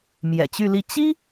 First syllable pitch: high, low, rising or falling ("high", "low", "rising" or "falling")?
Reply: low